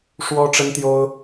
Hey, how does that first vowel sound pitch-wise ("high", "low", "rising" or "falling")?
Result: high